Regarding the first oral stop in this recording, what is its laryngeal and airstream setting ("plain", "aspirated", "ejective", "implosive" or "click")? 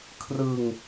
aspirated